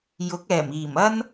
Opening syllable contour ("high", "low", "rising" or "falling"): rising